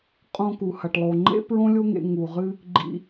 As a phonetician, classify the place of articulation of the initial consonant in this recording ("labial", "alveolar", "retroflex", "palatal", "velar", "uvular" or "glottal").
uvular